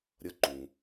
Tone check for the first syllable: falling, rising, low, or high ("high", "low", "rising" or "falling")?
rising